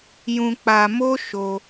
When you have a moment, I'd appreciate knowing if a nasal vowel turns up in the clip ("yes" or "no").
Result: yes